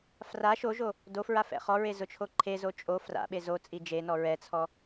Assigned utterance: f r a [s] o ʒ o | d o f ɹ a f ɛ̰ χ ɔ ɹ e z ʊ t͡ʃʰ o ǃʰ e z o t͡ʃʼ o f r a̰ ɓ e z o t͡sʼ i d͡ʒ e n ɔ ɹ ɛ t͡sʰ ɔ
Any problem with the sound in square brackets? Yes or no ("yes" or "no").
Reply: yes